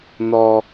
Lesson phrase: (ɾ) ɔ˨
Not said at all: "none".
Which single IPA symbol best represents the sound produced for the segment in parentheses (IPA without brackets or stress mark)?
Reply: n